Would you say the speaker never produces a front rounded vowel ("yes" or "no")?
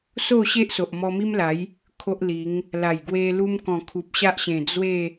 yes